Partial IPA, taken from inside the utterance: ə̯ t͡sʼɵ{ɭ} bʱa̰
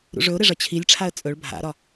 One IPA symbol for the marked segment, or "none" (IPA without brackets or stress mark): ɭ